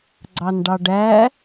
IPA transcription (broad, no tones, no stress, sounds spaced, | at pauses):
ɡ͡ǀ ɑ n ɖ ɑ ɖ æ